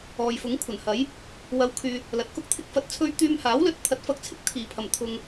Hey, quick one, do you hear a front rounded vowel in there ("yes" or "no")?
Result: yes